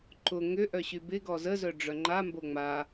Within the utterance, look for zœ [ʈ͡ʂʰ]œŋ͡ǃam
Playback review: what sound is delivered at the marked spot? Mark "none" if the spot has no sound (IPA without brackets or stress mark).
ɖ͡ʐ